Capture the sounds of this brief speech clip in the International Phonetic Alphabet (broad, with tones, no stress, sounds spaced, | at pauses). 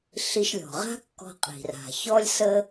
ɬ i˧ ʃ lʲ ɔ̤˩ ʁ a̤˥ kː ɔ̤˧ qʼ i̤˩ r a̤˩ ç ɔ˥ lʲ s əː˥